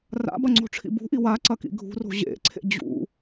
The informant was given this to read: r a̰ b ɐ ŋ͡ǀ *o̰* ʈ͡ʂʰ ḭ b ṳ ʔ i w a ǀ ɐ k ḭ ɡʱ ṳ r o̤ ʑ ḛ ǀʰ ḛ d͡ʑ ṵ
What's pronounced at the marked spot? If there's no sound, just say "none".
o̤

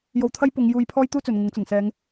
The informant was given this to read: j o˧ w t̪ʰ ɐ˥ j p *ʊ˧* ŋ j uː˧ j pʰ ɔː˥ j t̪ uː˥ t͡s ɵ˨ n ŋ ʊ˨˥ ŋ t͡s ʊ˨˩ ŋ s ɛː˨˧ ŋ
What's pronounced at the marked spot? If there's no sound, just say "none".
ʊ˨˧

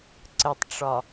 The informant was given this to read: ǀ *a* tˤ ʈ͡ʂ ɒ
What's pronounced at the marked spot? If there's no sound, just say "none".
ə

